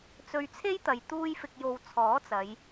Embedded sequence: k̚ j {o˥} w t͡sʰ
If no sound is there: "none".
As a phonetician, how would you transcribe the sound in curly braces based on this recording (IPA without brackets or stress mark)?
o˨